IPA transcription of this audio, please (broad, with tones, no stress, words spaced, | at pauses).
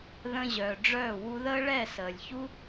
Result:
ðə̃˧ʑœː˨ɖ͡ʐœː˦˨ wu˧ðəː˦ɭɛ˦˨ səː˨lʲ çu˦